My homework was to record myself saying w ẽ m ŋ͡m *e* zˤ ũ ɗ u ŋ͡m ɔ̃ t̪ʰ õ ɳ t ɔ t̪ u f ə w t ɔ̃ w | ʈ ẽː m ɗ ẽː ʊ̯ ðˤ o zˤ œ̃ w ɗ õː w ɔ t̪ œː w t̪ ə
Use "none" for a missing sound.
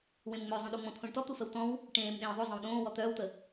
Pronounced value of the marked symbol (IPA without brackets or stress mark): ø